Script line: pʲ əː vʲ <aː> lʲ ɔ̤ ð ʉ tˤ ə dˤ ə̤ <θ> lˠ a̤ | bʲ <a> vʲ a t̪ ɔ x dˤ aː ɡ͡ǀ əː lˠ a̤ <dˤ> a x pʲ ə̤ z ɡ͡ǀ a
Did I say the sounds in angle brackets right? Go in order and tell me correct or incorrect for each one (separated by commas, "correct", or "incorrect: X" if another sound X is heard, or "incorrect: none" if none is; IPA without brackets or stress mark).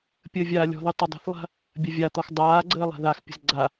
correct, correct, incorrect: ɐ, incorrect: ð